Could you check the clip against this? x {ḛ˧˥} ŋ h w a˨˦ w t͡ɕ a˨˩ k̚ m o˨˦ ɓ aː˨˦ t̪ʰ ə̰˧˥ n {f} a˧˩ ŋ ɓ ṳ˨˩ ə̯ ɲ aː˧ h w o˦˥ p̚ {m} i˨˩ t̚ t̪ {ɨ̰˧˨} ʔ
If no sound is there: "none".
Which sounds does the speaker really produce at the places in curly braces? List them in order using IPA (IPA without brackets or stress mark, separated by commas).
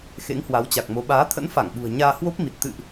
ḛ˧˥, f, m, ɨ̰˧˨